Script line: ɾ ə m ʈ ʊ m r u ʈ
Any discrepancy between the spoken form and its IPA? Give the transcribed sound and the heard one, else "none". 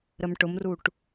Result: none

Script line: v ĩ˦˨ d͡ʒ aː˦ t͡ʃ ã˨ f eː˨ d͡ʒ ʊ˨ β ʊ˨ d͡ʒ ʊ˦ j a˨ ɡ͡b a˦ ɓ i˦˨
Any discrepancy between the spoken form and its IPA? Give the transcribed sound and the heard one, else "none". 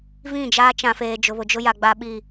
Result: none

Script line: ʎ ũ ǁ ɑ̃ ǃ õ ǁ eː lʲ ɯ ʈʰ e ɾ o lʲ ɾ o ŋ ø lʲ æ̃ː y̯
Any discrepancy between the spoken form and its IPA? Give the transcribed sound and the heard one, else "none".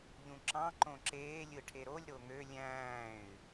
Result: none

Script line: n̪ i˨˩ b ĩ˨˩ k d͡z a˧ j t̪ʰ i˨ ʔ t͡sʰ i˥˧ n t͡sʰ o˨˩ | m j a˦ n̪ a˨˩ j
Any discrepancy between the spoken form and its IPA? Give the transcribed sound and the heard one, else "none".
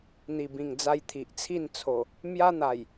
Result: k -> ŋ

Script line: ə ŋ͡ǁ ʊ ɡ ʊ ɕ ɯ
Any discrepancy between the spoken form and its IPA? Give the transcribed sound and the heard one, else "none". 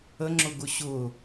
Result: ɯ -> ʊ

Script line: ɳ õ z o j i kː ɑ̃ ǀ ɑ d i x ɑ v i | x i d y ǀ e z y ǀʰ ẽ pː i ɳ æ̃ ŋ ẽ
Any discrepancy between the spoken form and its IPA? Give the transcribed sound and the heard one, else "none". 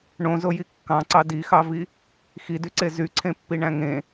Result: none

